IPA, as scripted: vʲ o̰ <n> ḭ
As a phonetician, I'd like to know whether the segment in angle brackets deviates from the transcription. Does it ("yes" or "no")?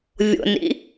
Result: no